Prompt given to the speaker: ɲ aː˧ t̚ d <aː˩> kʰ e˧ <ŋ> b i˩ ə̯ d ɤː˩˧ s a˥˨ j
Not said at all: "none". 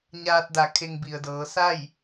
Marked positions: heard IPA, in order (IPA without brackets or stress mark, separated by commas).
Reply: a˩, ŋ